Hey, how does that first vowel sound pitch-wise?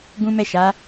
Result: high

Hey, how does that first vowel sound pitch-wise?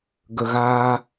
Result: low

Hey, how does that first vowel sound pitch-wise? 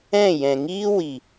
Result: falling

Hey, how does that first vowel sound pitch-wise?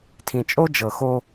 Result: low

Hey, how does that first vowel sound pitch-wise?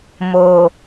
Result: low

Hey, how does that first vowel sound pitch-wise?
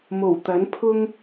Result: low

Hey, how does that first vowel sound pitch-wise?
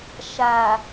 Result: low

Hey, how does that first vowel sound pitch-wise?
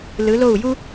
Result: rising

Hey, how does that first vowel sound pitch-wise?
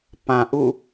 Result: low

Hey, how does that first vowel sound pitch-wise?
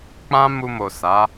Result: high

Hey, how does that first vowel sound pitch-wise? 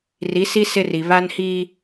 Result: rising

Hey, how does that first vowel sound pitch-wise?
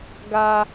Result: high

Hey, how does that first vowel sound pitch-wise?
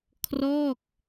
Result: falling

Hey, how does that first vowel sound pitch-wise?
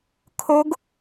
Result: rising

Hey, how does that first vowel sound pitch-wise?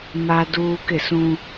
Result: high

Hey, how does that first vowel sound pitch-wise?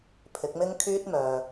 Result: rising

